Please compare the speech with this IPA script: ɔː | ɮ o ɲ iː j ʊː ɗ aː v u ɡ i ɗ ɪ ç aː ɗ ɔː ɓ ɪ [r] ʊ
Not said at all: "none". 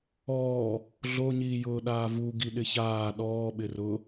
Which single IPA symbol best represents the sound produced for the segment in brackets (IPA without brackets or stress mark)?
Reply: r